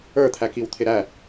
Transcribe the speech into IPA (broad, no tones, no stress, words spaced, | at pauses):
ə˞t̪ʰækiwt̪ʰɪ ɾæ